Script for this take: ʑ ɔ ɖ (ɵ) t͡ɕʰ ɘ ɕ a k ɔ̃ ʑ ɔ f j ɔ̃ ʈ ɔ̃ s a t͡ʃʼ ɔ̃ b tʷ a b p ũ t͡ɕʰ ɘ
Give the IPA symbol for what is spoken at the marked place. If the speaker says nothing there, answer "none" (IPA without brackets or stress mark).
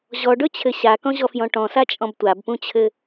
ɵ